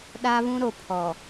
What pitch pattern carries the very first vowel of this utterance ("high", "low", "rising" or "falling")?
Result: high